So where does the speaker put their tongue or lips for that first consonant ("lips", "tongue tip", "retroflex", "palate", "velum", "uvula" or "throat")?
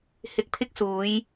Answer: throat